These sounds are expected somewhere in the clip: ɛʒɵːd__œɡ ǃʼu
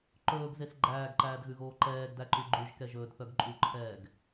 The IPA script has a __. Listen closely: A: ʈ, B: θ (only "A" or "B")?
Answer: B